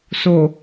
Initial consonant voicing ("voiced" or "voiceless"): voiceless